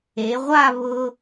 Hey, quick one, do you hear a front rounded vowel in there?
no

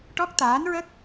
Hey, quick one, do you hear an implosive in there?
no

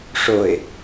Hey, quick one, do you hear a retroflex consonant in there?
yes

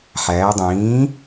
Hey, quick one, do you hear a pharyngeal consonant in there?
yes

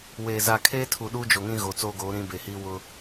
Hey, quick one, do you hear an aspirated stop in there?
yes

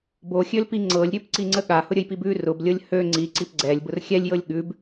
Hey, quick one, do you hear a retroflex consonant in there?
no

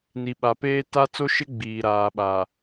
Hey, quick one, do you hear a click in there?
no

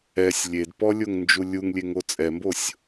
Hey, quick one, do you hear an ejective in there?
yes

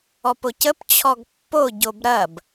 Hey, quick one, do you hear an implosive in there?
no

